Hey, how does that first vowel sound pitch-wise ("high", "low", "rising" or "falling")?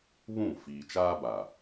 falling